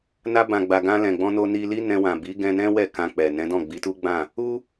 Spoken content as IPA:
n a˧ b ã˨ ɡ͡b a˨ ɡ ã˧ l ɛ̃˨ ɡ͡b ɔ̃˧ n o˧ n i˧ l i˦ n ɛ̃˧ w ã˨ b i˨˦ ɡ ɛ̃˧ n ɛ̃˦ w ɛ˦˨ k ã˧ k͡p ɛ˨ n ɛ̃˨˦ d ɔ̃˦˨ ɡ͡b i˨˦ t u˦ ɡ͡b ã˦˨ | u˦

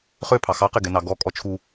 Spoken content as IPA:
χ ø pʰ ɑ x ɑ q e ɡ ɛ n ɑ ɡ ɔ kʼ ɔ t͡ʃʰ u

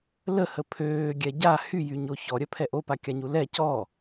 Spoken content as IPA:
l ə h ə pʰ øː ɡʲ ɛ ɟ a h y j y ɲ o ç ɔ ɾʲ œ pʰ ɛ ʔ o p a kʲ a ɲ u l ɛ c ɔ

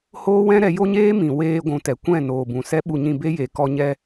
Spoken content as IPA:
h oː˦ w ɛ̃˦ ɾ ɛ˨˦ j o˦ ɲ eː˦ m ĩ˨ w eː˧ ɡʷ ũ˨ t ɛ˨ kʷ ɛ̃˦˨ n oː˨ b ũ˨ s ɛ˦ ɓ u˧ ɲ ĩ˧ b e˦ j e˨ k ɔ˦ ɲ ɛ˦

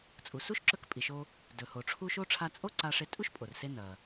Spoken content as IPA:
t͡sʼ u˩ s u˥ ʃ ǁ ɵ˧ k pʼ i˩ ʃ o˧ | d ɵ˩ h o˩ ʈ͡ʂʰ u˧ ʃ o˥ ʈ͡ʂʰ a˧ t͡sʼ o˥ ǀ a˧ ʂ e˧ tʼ u˥ ʃ pʼ o˩ r s e˧ n ɐ˩

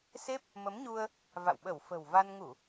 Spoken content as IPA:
s e˦˥ p̚ | m ə˨˦ m ɲ u˧ ə̯ | v a̰˧˨ w ɓ ə˧˩ w f ə̤˨˩ w v a˧ n ŋ u˧˩˨

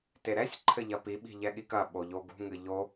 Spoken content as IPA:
t e ɾ ɛ sʲ ǃʰ ɘ ʎ ɐ p i ɓ i̤ ʎ ɛ ɠ i k ɐ ɓ o ʎ o ɡ ṳ ŋ ɨ ʎ o

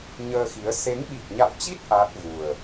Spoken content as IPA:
ɲ əː˧ x i˨˦ ə̯ s e˨˦ ŋ ɓ i˨˩ k̚ ɲ a̰˧˨ w t͡ɕ i˦˥ t̚ ʔ aː˦˥ t̚ v u˨˩ ə̯

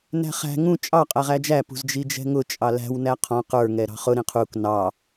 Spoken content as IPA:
n æ̤ χ æ̤ ŋ ũ t͡ʃʼ ɑ qʼ æ ʁ æ d͡ʒ æ p ṳ z d͡ʒ i d͡ʒ ɛ̤ ŋ ʊ t͡ʃʼ ɑ l æ̤ w n æ qʰ ɔ̃ q ə˞ ŋ ɛ ɾ ɑ̤ χ ʊ ɾ ĩ qʰ u k n ɑ

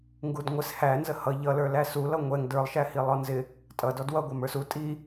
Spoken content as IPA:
ŋ ɡ u d ŋʷ ɪ s h æ n z ə h ʌ ʎ ʌ l ə˞ l æ s u l ʌ ŋʷ ɛ ŋ d ə˞ lˠ ʃ æ h i lˠ ɔ n z ɪ | tʼ ʌ d ɔ d w ʌ ɡʷ ɑ m ə˞ s u tʼ i

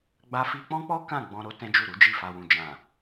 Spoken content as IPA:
ɡ͡b a˧ f i˧ k͡p ɔ̃˦ k͡p ɔ˦ k ã˦˨ ɡ͡b ɔ̃˧ ɾ o˧ t ɛ̃˦ d͡ʒ u˦˨ ɾ u˨˦ d͡ʒ i˦˨ f a˨ w ũ˨ d͡ʒ ã˨

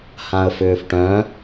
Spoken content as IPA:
h ã ə̯ f ʏː f ʈ œ̃

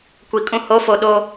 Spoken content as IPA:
kʷ i˨ kʼ ũ˦ h o˨˦ f o˨ ɗ o˦

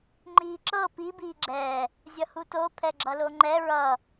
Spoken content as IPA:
ŋ͡ǃ iː ǁ ɤ p i b iː ɡ͡ǁ ɛː | zʲ ʌ h u t o pʰ ɛ ɡ͡ǁ ʌ l o ŋ͡ǃ ɛ ɹ ʌ

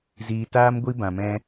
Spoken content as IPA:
z iː˧ t aː˦ m ɡʷ i˦ b ã˧ m ɛ̃˦

